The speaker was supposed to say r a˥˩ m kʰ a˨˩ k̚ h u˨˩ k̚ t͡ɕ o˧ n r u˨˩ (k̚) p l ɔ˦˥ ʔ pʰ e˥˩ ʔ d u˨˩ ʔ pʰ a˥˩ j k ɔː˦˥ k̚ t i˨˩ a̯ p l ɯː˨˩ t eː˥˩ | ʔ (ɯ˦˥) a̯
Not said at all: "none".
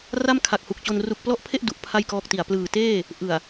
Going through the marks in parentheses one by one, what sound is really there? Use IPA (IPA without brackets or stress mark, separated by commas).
k̚, ɯ˨˩